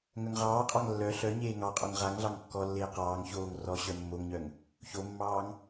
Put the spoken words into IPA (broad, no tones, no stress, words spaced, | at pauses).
ŋœŋʁɑːqʼɑŋ lːœ ɬœ ɲeːŋɑqʼoŋ ʁaŋɮɑŋ kːɔlːeː qɑːŋ çoːŋ rɔ ɕœmːoŋɲœŋ | çomːɑːŋ